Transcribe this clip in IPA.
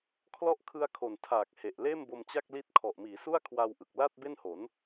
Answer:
kʰlɔ˦˥ʔkʰɯ˧a̯kʰo˨˩n tʰaː˨˩k̚he˨˩ʔ leː˥˩mbo˧mt͡ɕa˥˩k̚li˦˥t̚ kʰɔ˨˩ʔmiː˩˦su˥˩a̯ kʰwa˧wʔɯ˨˩k̚la˥˩t̚ be˥˩nho˩˦n

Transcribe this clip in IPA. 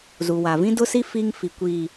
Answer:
zu˨wa˨ vĩ˦dʊ˦si˦ fi˦ŋfi˨ kʷi˨

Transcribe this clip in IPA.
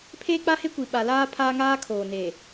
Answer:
pʰeː˦k͡pa˦he˦kʷi˨ ɓa˨laː˦ pʰaː˦ŋaː˦ kʰoː˨neː˨

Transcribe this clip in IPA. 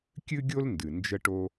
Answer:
kʲɨ˥ɡʲo˥l ndɨ˩ nd͡ʒə˧ʈo˧

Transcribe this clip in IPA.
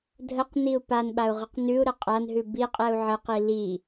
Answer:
dʱəqniu̯ panɓau̯ʁəq nʉu̯ɾə qʼanɦʉ biqʼɛu̯ ʕəqi li

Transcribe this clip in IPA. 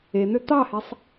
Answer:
en̪ø t̪ɑhesˤ

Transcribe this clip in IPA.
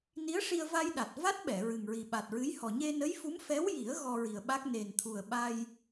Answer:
ni˧˥ə̯ʂi˧ə̯ va˧j ɗa˨˩t̚ va˦˥t̚ɓɛ˨˩˨ ɹɨ˨˩ŋɹi˨˩ ɓa˨˩t̚ɹɨ˧˥jhɔ˨˩ ɲe˧nə˧˥jfu˧˥m fɛ˧˥wji˨˩˦ə̯ ɣɔ˧ɹi˨˩ə̯ɓa˦˥k̚ ne˨˩nt̪ʰu˨˩ə̯ ɓa˧j

